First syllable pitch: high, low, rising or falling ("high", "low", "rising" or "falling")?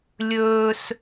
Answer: high